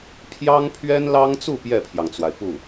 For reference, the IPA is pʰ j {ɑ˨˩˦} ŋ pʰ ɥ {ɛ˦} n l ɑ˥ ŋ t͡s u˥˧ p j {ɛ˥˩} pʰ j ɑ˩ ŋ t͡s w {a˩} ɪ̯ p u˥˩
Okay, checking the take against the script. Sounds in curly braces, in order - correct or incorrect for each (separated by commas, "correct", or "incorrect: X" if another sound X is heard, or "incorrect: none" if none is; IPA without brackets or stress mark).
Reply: incorrect: ɑ˥, incorrect: ɛ˥, correct, correct